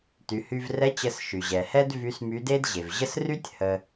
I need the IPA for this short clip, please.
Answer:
t y˩˧ h y˧ v r ɛ˧˥ t͡ɕ ə˧ s ʃ y˩ ʑ ɛ˩ h ɛ˥ d v y˧˥ s m y˧˥ d e˥ d ʑ e˩ v ʑ ə˥ s r y˥ tʲ h ə˧

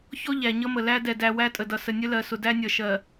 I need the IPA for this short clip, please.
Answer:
ç ɔ˦ ʎ æ˨ ɲ ʌ˦ m ə˨ l æ˦ d ɛ˨ d æ˨ w æ˦ tʼ ə˨ d ʌ˨ s ə˨ nʲ ə˦ l ɜ˨ s ʊ˨ d æ˦ nʲ ʌ˨ ʃ ɜ˨

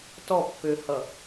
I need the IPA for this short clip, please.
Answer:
t ɔ pː ø h ʌ

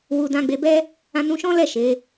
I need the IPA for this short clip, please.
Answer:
w u˧ d ã˧ ɡ͡b e˧ b ɛ˦ | ã˧ n ũ˧ ʃ ɔ̃˦ l ɛ˦˨ ʃ e˨˦

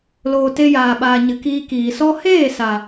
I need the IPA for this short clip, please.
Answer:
l oː˧ t e˦ j aː˧ ɓ aː˧ ɲ ɨ˨ k iː˧ k iː˨ s ɔ˦ h eː˦˨ s a˨

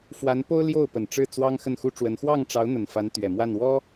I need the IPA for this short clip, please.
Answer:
f w a˧˥ n p o˥ ʊ̯ l j o˥˩ ʊ̯ p ə˨˩ n ʈ͡ʂ ɻ̩˥˩ t͡s w ɑ˥ ŋ x ə˥˩ n x u˥ ʈ͡ʂ w ə˧˥ n x w ɑ˥˩ ŋ ʈ͡ʂ ɑ˧˥ ʊ̯ n̪ ə˨˩ n f a˧˥ n t̪ ɥ ɛ˨˩ m w a˥˩ n w ɔ˥

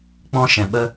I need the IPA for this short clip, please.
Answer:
k͡p ɔ̃˦ ʃ ɛ̃˨ ɓ ə˦

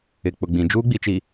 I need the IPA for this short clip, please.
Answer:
ɪ˨ k͡p ʊ˨ ɡ͡b ĩ˨ d͡ʒ uː˦ ɡ͡b i˨ t͡ʃ i˨

